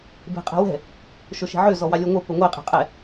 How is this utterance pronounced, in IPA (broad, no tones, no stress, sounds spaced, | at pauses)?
b e̤ qʼ ɛ̤ w ɛ̤ | ʃ ɵ ʃ e̤ ʕ ø z ɔ w ɑ lʲ ɔ ŋʷ e p ɵ ŋʷ e qʼ ɛ̤ qʼ ɛ